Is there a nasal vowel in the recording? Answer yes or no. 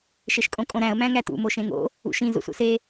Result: yes